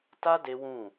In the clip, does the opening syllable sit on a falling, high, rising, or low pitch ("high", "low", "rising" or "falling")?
high